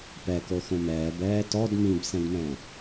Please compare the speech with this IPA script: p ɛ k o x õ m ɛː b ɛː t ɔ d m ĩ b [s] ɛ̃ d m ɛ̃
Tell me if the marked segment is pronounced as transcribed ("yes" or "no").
yes